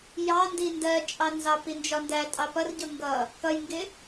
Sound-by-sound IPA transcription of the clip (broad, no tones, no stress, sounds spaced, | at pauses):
j ɑ n d i n d ɜ t͡ʃʼ ɑ n z ɑ p i n d͡ʒ ɒ n d æ tʼ ɑ p ʌ r ɟ ʊ ŋ ɡ ʌ | k ʌ j ŋ ɡ ɪ